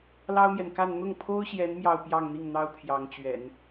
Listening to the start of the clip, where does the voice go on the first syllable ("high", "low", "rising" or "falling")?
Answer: high